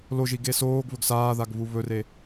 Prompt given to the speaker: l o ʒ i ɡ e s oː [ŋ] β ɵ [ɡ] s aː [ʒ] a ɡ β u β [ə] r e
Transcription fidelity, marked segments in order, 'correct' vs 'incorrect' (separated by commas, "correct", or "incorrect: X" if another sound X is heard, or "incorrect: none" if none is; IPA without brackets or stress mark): incorrect: ɡ, correct, incorrect: ð, incorrect: ɵ